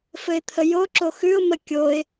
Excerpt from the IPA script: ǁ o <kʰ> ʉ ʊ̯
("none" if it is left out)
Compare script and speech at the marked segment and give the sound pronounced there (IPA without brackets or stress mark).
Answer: x